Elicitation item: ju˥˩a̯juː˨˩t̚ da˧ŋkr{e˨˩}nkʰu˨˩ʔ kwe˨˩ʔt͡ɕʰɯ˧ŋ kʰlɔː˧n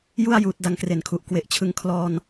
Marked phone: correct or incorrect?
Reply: correct